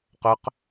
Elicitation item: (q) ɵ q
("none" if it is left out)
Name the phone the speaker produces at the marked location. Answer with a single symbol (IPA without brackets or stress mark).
q